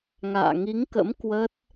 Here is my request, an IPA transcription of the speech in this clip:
ŋ a̰ː˧˨ ŋ i˨˦ ŋ k ə̰˧˥ m k w ə˦˥ t̚

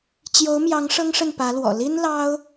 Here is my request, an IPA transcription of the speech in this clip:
t͡ɕ j o˧˥ ʊ̯ m j ɑ˧˥ ŋ ʂ ɤ˥ ŋ ʂ ə˥˩ n p ä˧˥ l w ɔ̰˨˩ l i˥ n l ɑ˥ ʊ̯

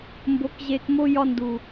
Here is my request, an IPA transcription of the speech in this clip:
m b o˨˦ k ʑ e˨ k m o˦ j ɒ˦ n d u˨

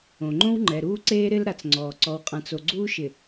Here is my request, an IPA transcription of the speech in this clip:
õ˨ ŋ͡ǃ õ˦ w ŋ͡ǃ ɛ˨ ɾ uː˦ ǀ eː˦ ɾ ɪ˦ l ɾ a˨ t͡s ŋ͡ǀ ɔː˨ ǀ ɔ˨ w qʼ ã˨ t͡s o˨ ɡ͡ǀ uː˦ ʃ ɪ˨

